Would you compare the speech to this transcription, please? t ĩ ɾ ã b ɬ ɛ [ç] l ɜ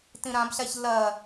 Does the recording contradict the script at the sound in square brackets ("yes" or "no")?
no